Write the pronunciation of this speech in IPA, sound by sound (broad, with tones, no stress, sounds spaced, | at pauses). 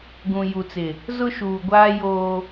ɡ ũ˨ j u˨ t͡s ɪ˨ | z ʊ˦ ʃ uː˨ ɡʷ aː˦ j oː˦